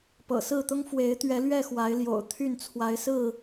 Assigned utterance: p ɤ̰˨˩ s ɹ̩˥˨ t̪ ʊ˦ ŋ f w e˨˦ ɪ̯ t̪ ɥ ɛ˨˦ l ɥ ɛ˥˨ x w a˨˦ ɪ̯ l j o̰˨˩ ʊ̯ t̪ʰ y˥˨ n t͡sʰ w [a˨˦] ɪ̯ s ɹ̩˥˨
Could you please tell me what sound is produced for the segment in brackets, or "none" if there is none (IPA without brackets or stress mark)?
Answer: a˨˦